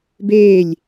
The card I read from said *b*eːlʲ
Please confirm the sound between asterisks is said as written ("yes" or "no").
yes